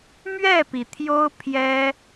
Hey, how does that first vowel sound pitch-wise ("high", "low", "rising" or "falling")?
falling